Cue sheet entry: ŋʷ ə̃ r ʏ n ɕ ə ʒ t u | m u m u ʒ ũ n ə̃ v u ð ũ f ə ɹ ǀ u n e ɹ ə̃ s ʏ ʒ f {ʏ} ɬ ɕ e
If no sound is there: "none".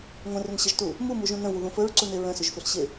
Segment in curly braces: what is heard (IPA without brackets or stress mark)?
ʏ